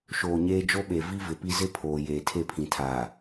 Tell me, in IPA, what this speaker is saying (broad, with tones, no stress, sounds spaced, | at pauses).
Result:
ʃ oː˨ ɲ eː˦ d͡ʒ o˦ ɓ e˨ v i˦ v ɪ˨ p i˦ z ɪ˦ pʰ oː˨ j eː˨ tʰ e˦˨ pʰ ĩ˨ tʰ aː˨